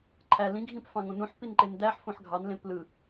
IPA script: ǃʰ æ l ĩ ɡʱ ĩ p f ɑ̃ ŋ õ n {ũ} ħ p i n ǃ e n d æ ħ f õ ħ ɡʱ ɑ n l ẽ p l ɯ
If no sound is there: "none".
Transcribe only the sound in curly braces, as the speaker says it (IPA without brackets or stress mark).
ũ